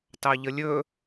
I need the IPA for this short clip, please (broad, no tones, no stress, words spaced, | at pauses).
tɑʎəlʲɵ